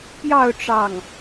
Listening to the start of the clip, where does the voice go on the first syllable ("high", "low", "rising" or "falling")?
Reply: falling